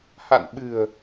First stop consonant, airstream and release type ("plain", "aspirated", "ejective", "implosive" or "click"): implosive